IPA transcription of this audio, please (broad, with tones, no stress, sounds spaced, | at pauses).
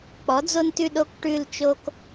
k͡p ɔ˩˥ d͡z o˦ n t ʉ˦˨ ɗ o˦˨ k ʈ ʉ˦˨ l t͡ʃ o˦ k